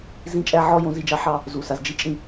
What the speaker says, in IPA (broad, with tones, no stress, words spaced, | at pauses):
zĩ˦t͡ʃʼæ˦ ʕɔ˦ jõ˨˦zi˨d͡ʒɑ˦ ħɑ˦ | zu˨sa˨zd͡ʒi˦t͡ʃʼĩ˦˨